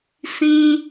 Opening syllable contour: high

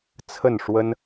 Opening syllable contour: falling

